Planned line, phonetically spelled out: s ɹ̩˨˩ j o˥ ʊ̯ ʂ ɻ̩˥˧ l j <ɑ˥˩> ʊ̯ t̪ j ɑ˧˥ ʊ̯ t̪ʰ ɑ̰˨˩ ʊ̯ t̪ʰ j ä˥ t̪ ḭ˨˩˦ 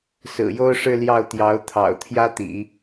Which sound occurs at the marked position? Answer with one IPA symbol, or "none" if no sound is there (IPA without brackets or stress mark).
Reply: ɑ˥˩